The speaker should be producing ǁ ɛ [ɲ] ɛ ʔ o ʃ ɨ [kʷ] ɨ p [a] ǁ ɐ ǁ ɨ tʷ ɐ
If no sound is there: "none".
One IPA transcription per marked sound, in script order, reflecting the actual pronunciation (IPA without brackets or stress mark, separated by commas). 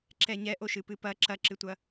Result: ɲ, p, ɐ